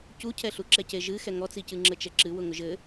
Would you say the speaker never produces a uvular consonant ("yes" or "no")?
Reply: yes